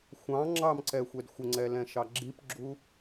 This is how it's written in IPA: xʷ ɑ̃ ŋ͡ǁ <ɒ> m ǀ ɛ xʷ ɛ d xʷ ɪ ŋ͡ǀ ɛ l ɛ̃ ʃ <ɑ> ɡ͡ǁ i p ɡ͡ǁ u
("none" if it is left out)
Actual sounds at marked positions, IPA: ɑ, ɑ

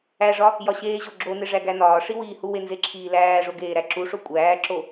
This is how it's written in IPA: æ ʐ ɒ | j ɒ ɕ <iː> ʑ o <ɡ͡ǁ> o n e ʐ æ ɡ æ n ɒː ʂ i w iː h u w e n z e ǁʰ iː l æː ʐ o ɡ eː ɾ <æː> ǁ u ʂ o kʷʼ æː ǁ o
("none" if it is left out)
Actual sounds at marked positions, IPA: eː, ɡ͡ǁ, æ

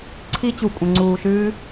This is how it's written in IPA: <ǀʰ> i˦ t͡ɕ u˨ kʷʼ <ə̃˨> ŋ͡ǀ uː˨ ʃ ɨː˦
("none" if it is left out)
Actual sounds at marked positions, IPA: ǀʰ, ə̃˨

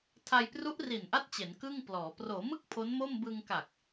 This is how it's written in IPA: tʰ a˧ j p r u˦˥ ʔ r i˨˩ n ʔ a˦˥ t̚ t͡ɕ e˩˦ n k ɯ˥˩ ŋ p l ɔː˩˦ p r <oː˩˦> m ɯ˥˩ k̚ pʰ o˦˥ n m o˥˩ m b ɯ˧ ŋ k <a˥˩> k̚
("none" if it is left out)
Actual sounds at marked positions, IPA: oː˩˦, a˨˩

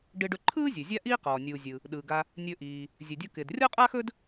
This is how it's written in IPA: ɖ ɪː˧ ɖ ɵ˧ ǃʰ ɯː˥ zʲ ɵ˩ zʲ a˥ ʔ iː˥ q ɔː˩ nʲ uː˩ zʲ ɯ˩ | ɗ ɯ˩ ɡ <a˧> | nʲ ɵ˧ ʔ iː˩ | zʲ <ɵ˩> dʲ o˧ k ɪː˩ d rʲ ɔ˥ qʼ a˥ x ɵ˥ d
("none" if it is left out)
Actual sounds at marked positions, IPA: a˧, ɵ˩

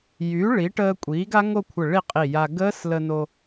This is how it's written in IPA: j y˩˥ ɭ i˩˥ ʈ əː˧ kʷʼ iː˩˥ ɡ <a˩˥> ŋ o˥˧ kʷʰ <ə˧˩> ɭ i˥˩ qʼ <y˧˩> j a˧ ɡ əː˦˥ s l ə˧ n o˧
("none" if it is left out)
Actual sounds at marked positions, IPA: a˦˥, ə˧˩, i˧˩

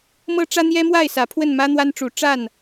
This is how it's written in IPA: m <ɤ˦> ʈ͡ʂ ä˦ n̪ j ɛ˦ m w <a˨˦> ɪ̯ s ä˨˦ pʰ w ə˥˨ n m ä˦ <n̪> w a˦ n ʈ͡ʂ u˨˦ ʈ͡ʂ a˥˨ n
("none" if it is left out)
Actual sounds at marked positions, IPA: ɤ˦, a˥˨, n̪

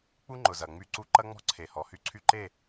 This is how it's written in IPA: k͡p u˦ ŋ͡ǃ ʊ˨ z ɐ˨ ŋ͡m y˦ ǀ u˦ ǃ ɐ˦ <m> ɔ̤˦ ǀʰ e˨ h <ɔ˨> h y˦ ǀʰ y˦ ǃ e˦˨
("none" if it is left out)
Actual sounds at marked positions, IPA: ŋ͡m, ɔ˨

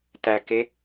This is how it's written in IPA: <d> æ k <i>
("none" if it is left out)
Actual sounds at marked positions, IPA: t, e

